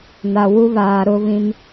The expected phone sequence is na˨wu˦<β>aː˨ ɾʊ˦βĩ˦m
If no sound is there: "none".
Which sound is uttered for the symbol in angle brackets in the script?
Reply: β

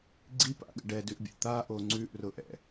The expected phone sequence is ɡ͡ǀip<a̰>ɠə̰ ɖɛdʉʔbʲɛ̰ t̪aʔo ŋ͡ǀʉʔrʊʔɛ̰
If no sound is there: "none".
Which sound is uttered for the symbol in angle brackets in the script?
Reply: a̰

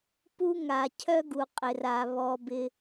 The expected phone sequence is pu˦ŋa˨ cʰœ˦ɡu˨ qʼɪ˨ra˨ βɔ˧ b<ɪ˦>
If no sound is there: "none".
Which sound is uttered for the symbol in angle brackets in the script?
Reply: ɪ˦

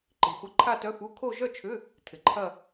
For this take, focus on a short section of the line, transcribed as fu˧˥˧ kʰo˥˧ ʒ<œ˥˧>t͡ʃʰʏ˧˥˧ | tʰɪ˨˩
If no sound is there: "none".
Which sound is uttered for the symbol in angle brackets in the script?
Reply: œ˥˧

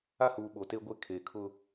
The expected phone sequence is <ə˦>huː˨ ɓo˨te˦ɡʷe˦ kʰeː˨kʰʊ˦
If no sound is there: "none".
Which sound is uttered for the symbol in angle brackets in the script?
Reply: a˦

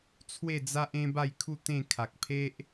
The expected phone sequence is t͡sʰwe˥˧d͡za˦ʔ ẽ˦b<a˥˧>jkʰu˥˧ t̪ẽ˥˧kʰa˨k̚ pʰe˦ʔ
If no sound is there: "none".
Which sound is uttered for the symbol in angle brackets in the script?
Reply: a˥˧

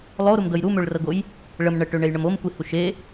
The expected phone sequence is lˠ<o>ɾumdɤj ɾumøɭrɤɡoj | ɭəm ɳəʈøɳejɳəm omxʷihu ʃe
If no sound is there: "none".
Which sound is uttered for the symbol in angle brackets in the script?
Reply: o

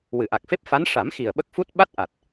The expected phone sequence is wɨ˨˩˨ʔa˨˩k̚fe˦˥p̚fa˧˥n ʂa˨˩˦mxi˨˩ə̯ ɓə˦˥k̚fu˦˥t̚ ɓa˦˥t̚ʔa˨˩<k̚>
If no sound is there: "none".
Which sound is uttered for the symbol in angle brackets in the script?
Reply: t̚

